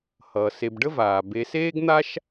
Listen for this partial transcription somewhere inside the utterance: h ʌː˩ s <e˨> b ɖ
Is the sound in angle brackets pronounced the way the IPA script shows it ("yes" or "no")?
yes